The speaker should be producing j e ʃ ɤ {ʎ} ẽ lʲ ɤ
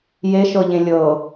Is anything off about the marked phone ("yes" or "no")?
no